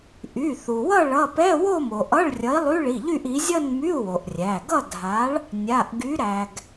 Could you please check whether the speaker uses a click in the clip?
no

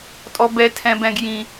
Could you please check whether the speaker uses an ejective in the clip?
yes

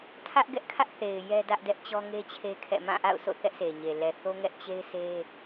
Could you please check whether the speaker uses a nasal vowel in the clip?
yes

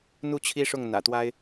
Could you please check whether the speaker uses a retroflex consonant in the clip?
yes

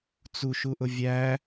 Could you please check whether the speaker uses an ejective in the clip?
no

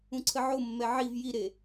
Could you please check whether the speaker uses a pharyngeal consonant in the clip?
yes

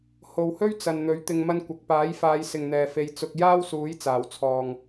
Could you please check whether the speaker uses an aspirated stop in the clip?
yes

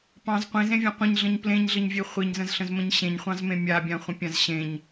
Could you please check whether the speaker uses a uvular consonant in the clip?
yes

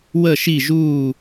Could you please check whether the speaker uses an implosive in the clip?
no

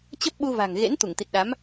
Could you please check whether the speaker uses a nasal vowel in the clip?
no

